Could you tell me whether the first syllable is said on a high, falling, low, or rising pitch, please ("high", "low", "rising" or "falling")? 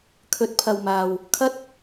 low